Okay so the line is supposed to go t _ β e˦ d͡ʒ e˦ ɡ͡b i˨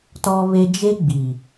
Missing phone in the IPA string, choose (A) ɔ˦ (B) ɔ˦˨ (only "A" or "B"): A